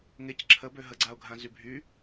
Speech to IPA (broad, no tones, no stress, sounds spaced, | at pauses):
ŋ e c ǁʰ ə b ø ɦ ə ɡ͡ǀ a ʊ̯ ɡʱ ã z y bʱ y